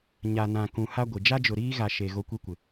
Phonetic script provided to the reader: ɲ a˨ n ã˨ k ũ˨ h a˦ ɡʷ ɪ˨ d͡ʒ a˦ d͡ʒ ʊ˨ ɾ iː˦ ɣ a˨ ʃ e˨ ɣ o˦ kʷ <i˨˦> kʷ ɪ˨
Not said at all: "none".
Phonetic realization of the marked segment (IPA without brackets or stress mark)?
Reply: i˦